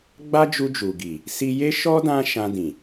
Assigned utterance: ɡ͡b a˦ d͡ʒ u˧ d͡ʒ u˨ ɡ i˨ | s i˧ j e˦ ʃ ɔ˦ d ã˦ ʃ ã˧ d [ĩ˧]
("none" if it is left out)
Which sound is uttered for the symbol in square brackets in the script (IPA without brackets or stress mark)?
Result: ĩ˨